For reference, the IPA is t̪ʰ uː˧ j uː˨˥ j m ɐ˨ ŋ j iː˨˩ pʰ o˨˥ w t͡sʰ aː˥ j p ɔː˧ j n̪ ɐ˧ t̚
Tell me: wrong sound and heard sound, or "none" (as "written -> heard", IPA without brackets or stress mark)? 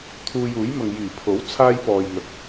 none